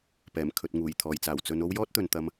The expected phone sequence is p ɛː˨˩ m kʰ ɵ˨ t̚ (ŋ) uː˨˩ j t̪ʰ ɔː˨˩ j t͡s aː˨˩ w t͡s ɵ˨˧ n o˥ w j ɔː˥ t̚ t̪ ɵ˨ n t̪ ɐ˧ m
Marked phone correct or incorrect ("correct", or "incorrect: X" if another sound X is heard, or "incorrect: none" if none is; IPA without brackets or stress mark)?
correct